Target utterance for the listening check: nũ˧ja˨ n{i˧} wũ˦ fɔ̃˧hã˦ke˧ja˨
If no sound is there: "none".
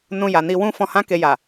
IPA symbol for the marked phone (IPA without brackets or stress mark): i˧